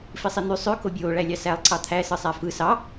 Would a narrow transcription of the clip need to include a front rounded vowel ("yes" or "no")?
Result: yes